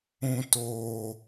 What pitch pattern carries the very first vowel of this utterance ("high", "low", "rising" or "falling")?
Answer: low